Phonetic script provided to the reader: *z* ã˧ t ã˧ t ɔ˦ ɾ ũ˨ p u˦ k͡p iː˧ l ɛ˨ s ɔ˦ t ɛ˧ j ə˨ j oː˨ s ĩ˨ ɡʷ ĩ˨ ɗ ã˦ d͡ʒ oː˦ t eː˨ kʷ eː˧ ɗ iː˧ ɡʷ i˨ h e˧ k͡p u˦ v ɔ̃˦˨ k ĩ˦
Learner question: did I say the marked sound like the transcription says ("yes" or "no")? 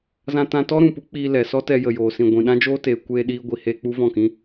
yes